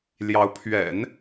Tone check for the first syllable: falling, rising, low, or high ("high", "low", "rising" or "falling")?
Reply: rising